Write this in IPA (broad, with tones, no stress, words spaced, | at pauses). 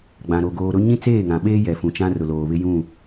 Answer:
ɡ͡bã˨ɾo˨ ɡoː˨ɾʊ˦ ɲĩ˦t͡seː˦˨ŋã˨ɓeː˦ jɛ˨fũ˨t͡ʃã˦rʊ˨ loː˨βɪ˦jũ˦˨